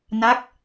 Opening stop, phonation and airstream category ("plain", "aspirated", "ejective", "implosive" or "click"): plain